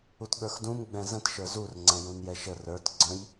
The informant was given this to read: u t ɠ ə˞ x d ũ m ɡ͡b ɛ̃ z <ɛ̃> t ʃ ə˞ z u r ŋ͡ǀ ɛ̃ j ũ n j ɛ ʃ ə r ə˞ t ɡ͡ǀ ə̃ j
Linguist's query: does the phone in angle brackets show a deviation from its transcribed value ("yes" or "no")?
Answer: yes